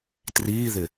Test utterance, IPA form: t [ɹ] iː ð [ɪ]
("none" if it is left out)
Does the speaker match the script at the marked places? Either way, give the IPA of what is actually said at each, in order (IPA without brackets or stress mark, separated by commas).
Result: r, ɪ